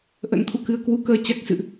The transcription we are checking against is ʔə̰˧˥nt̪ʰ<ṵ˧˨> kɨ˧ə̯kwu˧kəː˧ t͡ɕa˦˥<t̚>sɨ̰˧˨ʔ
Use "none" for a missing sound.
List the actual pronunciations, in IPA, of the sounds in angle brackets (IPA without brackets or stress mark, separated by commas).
ṵ˧˨, k̚